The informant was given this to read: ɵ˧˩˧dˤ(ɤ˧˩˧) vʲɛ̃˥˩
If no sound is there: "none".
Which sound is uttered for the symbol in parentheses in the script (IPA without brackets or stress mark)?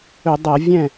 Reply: ɤ˧˩˧